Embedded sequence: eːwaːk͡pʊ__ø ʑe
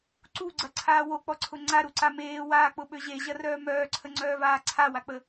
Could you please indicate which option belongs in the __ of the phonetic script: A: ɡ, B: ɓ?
B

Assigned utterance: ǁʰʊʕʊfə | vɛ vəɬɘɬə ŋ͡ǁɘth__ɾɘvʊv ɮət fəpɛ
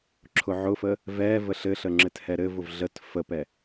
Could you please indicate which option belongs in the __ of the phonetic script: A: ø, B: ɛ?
B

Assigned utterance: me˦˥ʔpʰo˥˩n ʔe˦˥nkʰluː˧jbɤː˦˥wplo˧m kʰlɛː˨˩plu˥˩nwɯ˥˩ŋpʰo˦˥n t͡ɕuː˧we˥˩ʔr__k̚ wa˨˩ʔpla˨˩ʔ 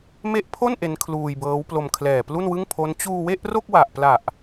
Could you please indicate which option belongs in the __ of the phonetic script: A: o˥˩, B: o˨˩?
A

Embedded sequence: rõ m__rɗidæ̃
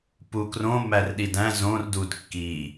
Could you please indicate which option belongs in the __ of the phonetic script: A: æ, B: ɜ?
A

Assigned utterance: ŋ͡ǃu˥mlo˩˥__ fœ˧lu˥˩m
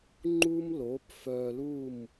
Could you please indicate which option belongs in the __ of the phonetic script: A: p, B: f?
A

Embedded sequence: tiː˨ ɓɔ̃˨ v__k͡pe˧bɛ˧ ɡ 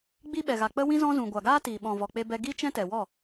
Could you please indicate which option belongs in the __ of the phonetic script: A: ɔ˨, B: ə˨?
A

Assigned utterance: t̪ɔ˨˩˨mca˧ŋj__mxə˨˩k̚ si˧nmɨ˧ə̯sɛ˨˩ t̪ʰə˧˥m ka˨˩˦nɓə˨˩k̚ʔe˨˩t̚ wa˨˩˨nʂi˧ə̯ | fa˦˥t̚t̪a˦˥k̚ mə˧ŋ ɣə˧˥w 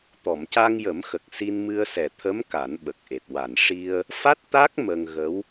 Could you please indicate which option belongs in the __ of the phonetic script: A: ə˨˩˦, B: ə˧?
A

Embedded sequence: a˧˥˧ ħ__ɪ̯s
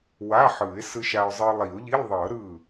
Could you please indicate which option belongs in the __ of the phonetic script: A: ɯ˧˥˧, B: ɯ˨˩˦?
B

